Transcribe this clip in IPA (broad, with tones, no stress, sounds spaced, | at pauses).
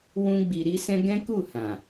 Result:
w ũ˦ ɡ͡b i˧ ɾ i˦ s ɛ̃˦ ɡ ɛ̃˦ k u˦˨ h ã˨